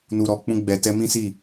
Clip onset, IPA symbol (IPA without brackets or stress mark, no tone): n